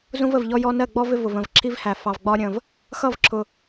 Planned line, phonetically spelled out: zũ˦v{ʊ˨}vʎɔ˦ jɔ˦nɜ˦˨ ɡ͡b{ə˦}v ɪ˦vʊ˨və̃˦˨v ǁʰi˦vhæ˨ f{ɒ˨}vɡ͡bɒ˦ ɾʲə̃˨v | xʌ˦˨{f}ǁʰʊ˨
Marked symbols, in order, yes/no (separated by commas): no, no, no, no